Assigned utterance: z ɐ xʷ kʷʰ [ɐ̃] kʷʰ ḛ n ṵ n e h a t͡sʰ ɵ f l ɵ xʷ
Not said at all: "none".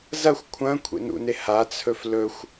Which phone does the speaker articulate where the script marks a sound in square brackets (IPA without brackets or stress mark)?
ɐ̃